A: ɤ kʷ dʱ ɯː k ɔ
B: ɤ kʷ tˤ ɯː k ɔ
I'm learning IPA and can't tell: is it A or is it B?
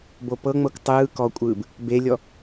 B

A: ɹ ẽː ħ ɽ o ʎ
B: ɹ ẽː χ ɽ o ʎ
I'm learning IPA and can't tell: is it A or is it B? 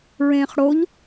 B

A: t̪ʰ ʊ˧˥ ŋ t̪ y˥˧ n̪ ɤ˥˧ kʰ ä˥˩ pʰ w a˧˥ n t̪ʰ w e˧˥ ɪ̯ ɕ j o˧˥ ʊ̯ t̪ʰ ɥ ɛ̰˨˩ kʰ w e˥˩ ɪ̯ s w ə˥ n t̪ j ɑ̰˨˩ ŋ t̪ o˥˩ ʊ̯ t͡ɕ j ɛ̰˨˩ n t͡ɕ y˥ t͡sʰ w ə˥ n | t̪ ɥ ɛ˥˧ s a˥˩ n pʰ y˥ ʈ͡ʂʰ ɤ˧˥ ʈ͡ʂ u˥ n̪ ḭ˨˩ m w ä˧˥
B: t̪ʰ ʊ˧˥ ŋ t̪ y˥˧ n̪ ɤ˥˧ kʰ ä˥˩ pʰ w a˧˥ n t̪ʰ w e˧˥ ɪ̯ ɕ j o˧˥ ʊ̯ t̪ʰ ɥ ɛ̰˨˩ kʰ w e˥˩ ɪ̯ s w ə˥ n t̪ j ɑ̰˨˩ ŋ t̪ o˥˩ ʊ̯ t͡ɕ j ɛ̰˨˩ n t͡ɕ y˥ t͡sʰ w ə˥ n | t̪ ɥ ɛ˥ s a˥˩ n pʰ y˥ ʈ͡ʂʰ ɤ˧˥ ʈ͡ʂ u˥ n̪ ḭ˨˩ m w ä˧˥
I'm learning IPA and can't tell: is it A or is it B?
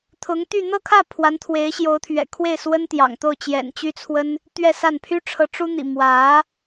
A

